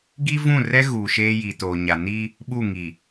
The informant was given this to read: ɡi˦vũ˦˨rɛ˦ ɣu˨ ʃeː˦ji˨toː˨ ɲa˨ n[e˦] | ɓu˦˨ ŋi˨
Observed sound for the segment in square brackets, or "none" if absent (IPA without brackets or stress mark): i˦